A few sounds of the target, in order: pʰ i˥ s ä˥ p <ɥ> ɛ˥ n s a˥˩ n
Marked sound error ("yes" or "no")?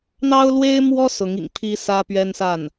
no